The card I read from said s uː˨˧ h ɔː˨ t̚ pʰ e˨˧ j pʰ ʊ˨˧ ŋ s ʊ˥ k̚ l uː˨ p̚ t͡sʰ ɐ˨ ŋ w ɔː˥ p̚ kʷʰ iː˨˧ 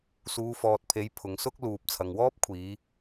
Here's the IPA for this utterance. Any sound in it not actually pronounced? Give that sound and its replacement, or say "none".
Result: h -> f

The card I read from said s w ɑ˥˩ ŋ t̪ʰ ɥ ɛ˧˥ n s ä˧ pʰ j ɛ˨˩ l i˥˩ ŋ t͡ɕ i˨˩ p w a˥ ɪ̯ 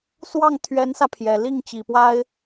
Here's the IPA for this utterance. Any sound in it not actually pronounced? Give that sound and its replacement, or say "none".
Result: none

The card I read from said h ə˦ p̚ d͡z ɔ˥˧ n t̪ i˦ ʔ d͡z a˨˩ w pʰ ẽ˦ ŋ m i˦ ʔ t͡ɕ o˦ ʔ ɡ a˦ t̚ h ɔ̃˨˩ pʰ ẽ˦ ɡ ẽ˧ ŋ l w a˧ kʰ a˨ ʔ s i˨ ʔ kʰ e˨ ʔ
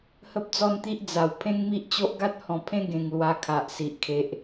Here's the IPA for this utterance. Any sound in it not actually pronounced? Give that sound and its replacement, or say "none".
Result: none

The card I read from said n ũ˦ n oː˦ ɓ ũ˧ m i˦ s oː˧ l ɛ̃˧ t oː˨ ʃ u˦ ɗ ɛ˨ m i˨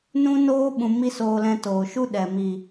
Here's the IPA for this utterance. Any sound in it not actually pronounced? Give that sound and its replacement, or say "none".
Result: none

